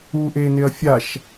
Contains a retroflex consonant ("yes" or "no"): no